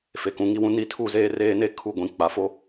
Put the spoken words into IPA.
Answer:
f e˨ k ũ˨ ŋ i˦ w ũ˦ n i˦ tʰ u˦˨ z eː˦ r eː˦ n e˦ kʰ u˦˨ ɡʷ ĩ˨ k͡p a˨ f o˦

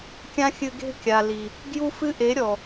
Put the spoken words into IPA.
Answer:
kʲ ã˦ xʲ ɨ˧ ɡ e̤˦ kʲ a˨ l i˨ | ɡ j u˦ f ɨ˦ ʔ e˨˦ ɾʲ ɔ˨

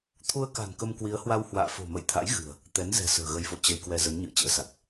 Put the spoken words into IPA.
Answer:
t̪ʰ u˧ ə̯ k a̤˨˩ n k ə˧ m k w i˨˦ ə̯ h w a˧ w h w a̰ː˧˨ f o̤˨˩ m ə̰˧˨ j t̪ʰ a̰˧˥ j ɣ ɨ̤˨˩ ə̯ | t̪ ɛ˨˦ n z ɛ̤˨˩ s ə̤ː˨˩ ɣ ə˨˦ j f o̰˧˨ t͡ɕ ə˧ j k w ɛ˧ z ə˨˦ n ɲ ɨ̰˧˨ ə̯ t͡ɕ ə̰ː˧˥ s a˨˩ k̚

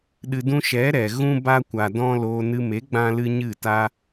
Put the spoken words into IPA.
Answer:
ɗ ɨ˨ d ũ˧ ʃ ɛ˨˦ ɾ ɛ˨ ɣ ũ˦ b a˦ kʷ a˨ d ɔ̃˦ l oː˧ n ɨ˧ m e˨˦ ɡ͡b ã˦ l ɨ˦ ɲ ɨ˦˨ t a˦

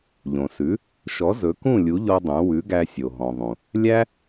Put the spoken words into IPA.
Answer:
ʎ õ˩ s ʉ˩˥ | ʃ ɔ˩˥ z ɵ˩˥ k ũ˥˩ lʲ u˩˥ ʎ ɔ˧ dˤ ũ˩˥ w ʉ˩˥ ɡ æ˧ sʲ o˩ ɦ ɔ̃˩ ðˤ ũ˩ | lʲ æ˥

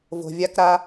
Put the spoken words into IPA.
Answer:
v o̤˨ vʲ a˦ k ɾ a˦

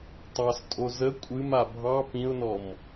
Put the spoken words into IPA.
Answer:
tˤ ɑ s tʼ o z ə kʷʼ ɨ m a bʱ ɑ p ĩ ʊ̯ n ɔ m

